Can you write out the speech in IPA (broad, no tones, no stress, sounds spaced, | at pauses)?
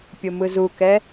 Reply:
pʲ o m ɯ z u k ɛ